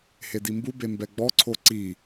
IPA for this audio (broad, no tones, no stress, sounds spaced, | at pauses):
h e d i m b u b e m b ɛ ɡ͡b ɔ ǀʰ o ǀ i